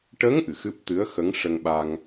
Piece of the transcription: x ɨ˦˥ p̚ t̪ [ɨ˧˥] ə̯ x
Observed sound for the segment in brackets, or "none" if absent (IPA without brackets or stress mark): ɨ˧˥